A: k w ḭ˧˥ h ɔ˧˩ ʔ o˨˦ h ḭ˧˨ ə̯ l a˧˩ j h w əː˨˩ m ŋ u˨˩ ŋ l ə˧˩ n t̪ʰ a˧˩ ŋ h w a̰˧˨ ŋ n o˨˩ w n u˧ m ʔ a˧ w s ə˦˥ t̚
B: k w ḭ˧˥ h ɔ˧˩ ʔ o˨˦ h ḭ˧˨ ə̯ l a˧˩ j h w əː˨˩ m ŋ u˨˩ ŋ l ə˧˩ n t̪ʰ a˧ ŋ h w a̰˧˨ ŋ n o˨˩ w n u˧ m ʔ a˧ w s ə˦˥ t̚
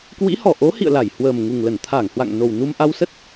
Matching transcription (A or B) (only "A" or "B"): A